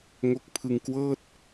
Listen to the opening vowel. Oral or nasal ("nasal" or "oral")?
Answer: oral